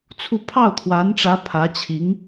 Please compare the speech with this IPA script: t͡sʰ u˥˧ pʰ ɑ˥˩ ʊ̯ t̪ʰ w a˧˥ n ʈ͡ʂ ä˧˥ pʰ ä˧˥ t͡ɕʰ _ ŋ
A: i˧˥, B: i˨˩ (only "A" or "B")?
A